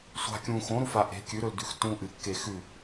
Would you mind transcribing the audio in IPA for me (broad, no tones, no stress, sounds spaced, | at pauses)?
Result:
sʷ a̤ kʲ ũ x õ ɾ u f a ʔ e̤ kʲ ʉ ɾ ɵ l d ʉ x tː ũ ʔ ɨ kː e x ʉ